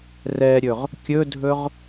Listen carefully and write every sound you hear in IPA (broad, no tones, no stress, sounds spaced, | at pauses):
r ɛ ɾʲ ɵ ʁ | kʲ ɵ dʱ ɵ ʁ